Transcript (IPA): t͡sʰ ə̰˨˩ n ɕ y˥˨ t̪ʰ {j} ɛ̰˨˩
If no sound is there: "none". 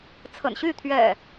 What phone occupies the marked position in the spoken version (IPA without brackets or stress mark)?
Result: ɥ